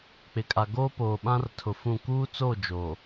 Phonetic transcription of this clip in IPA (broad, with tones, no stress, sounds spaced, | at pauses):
k͡p ɪ˨ kʼ a˨ ɡ oː˦ p oː˨ ɓ ã˦ r tʰ ʊ˨ f ũ˦˨ k uː˦ t͡s o˦˨ d͡ʒ o˨